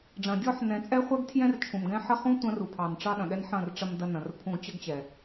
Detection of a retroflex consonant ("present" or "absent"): present